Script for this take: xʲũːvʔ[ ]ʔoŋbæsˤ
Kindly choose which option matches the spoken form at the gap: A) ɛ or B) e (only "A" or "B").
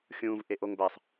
B